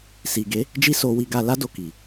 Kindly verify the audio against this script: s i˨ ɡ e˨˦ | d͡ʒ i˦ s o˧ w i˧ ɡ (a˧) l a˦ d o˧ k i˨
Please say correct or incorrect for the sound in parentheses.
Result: correct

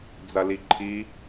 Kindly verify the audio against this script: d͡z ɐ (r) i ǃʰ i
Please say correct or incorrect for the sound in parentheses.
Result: incorrect: l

